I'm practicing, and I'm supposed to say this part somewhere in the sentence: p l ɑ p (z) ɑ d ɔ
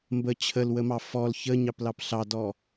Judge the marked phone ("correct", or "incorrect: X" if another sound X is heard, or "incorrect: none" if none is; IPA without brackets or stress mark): incorrect: ɬ